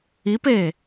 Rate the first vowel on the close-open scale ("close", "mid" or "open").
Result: close